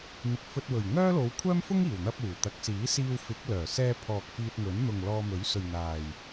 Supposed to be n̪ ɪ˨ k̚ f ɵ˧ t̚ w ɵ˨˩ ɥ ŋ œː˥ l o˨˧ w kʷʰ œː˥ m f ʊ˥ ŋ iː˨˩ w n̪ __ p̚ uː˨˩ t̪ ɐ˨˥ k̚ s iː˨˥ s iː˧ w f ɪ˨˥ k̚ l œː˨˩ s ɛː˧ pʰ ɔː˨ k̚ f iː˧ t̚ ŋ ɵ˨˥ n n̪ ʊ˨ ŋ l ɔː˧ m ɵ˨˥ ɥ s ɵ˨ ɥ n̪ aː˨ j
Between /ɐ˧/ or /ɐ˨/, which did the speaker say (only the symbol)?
ɐ˧